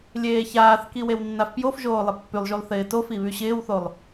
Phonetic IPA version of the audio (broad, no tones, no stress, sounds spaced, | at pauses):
lʲ eː ç aː θ k i w e w nː a f p j o f ʒ oː lˠ ɪ pː y lˠ ʒ y lˠ θ ɪː t o f i β y ɕ ɪː w θ o lˠ